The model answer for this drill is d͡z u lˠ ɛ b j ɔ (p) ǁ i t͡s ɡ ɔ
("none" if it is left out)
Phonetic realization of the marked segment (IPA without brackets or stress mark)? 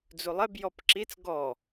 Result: p